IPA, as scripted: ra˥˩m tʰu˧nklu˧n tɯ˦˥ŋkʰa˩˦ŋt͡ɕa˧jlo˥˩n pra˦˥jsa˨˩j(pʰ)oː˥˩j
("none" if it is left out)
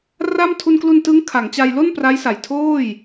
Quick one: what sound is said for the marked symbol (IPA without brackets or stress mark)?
tʰ